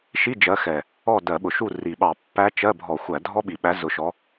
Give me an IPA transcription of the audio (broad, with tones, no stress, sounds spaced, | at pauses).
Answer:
ʃ i˧˥˧ d͡ʒ ɜ˨˦ x ɛ˨˩ | ɔ˦˨ d ɜ˧˩˧ ɓ ʊ˨˩ ʃ u˦˨ r i˨˩ ɓ ɑ˧˩˧ pː æ˦˥ t͡ʃ ɜ˧˥˧ bʱ ɔ˧˩˧ xʷ æ˧˩˧ dʱ ɔ˦˥ ɓ i˨˩ ɓ æ˨˦ z ʊ˨˦ ʃ ɔ˨˦